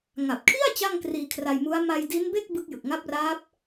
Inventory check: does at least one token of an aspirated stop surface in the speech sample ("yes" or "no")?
yes